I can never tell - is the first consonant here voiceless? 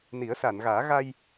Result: no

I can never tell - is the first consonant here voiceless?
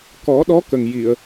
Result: yes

